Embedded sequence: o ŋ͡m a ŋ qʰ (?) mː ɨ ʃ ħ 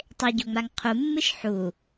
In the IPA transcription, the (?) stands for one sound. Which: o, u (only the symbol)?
u